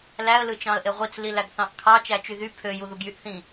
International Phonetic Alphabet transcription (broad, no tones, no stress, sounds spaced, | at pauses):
l æ ə̯ l ɯ t͡ʃ ɑ̃ ə̯ ʔ e ʁʷ i t͡s l i l æ ɡ θ ɑ̃ ʔ kʰ ɑ t͡ʃ æ t͡ʃ y ð y pʰ ø j u ð u ɡ j y ʔ θ ĩ